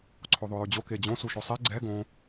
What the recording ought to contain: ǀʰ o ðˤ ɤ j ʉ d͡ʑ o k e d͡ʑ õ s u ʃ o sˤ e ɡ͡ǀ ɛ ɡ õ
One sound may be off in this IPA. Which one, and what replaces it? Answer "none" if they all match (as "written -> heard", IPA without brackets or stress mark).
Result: ɤ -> o